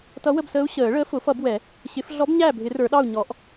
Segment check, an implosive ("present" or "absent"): present